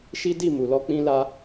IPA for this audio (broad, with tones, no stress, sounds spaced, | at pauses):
ʃ i˦ d i˦˨ m u˨ l ɔ˧ k͡p ĩ˦ l a˦